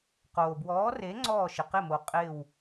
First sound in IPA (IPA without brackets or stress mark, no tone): q